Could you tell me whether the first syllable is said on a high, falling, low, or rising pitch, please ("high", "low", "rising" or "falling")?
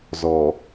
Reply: low